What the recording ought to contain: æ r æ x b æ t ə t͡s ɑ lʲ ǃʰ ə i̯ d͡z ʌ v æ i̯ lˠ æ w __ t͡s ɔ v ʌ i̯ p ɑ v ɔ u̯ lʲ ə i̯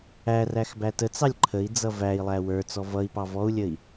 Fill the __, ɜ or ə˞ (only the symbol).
ə˞